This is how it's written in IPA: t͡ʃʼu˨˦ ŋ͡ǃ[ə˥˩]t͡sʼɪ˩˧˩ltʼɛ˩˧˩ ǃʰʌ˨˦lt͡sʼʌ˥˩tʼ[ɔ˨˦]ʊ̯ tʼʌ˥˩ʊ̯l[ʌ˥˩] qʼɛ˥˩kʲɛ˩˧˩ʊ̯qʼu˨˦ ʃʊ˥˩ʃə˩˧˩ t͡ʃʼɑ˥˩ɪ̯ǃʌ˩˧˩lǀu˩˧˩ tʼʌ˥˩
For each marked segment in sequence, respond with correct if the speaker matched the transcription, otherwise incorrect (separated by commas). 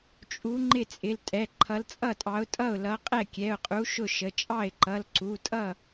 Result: incorrect, incorrect, incorrect